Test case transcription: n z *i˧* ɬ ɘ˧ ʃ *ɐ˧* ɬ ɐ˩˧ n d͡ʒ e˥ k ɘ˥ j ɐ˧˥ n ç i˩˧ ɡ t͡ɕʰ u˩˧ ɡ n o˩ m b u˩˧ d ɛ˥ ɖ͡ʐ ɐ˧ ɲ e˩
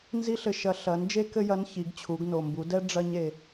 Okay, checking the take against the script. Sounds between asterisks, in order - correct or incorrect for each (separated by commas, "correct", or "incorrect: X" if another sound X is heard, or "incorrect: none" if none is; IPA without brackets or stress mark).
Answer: incorrect: i˥, correct